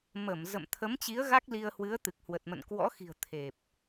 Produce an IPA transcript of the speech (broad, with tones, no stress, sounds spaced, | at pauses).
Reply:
m ə˧˩ m z ə̰˧˨ m t̪ʰ ə˨˦ m t͡ɕ i˨˦ ə̯ ɣ a˦˥ k̚ l i˧ ə̯ h w ɨ˨˦ ə̯ t̪ ɨ˨˩ k̚ h w ə˨˩ t̚ m ə̰˧˨ n k w ɔ̰˧˥ x i̤˨˩ ə̯ t̪ʰ e˨˩ p̚